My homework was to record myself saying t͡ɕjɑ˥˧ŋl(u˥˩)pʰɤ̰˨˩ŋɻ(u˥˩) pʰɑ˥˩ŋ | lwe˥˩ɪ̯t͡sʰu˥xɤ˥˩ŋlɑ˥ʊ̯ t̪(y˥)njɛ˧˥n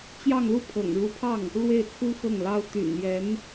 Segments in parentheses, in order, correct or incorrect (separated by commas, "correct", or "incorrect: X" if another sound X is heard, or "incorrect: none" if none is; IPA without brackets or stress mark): correct, incorrect: u˧˥, incorrect: y̰˨˩